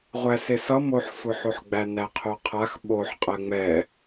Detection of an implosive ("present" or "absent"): present